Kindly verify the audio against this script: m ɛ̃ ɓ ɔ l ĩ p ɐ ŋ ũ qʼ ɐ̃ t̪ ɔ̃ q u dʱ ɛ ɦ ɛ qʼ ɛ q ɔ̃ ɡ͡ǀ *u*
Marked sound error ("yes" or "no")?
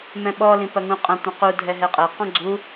no